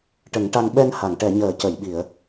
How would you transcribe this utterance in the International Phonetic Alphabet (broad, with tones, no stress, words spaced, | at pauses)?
ʈə˨˩˦ŋʈa˧ŋ ɓɛ˧nha˨˩˨ŋʈɛ˨˩˨ɲəː˨˩˨ cə˨˩˨jɓi˨˩˨ə̯